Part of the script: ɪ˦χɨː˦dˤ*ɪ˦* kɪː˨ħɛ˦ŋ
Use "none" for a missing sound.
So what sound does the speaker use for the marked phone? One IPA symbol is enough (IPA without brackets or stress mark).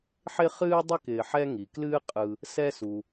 ɪ˦